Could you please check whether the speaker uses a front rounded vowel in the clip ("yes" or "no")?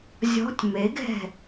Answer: no